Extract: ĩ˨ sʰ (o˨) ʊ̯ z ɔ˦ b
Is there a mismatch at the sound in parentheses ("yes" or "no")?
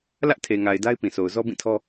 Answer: no